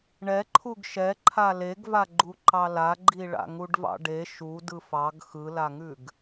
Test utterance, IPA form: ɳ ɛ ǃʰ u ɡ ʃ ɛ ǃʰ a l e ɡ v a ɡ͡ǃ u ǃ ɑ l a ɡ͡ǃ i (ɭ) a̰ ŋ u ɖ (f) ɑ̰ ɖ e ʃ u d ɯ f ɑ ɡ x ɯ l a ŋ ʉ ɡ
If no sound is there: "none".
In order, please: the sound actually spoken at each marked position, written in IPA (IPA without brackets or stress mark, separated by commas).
ɭ, v